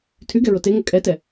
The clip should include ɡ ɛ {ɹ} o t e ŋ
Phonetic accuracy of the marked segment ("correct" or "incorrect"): correct